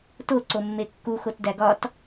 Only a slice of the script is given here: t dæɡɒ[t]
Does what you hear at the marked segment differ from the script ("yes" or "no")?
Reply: no